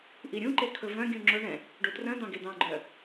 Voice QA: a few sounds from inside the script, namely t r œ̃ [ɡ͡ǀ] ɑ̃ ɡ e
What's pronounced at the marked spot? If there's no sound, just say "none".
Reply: d̪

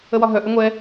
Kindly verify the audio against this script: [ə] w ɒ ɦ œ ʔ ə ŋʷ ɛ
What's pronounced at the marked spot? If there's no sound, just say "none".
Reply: ə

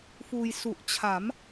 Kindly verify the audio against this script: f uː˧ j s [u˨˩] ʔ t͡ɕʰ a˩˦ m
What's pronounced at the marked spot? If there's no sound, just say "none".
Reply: u˨˩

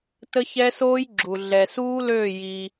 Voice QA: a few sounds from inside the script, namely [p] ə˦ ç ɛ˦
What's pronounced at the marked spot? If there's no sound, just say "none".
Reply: t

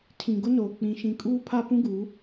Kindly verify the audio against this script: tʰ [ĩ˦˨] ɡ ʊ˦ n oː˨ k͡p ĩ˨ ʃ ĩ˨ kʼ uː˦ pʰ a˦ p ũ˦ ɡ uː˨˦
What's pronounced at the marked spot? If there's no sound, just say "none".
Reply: ĩ˨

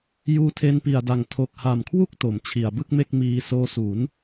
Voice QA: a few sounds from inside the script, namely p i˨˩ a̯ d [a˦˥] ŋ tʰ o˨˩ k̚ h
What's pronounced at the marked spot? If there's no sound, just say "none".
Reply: a˨˩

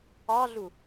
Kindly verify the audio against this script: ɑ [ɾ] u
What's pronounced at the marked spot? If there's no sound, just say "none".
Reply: ɮ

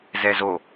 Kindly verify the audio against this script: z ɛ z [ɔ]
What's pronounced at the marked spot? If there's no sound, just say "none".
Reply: o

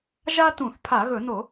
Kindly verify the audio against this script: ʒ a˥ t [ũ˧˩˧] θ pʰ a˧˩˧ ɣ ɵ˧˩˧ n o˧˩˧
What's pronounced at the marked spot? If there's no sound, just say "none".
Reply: ũ˧˩˧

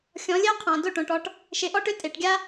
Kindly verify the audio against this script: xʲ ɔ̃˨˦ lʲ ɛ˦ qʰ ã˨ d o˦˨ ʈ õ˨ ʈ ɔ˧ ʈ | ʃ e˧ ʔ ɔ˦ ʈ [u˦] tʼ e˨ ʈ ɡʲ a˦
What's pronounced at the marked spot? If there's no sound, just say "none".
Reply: ʏ˦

